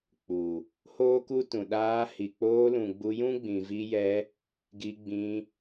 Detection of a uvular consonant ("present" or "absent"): absent